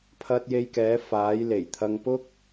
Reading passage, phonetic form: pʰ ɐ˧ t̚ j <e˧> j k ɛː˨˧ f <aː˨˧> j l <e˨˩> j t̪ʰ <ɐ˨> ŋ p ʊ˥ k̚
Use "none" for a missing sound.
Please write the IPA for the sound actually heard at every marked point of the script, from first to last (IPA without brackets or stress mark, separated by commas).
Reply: e˧, aː˨˧, e˨˩, ɐ˧